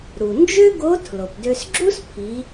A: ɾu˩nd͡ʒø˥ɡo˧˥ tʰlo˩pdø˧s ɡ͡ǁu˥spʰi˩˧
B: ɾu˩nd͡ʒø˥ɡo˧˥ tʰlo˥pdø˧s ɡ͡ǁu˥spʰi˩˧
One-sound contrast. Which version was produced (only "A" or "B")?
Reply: A